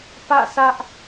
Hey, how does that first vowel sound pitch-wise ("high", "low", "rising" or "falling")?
falling